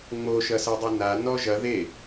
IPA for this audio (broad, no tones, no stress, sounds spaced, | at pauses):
ŋ͡m o ʃ ɐ s ɐ dˤ o n a n ɔ ʒ ɐ ð e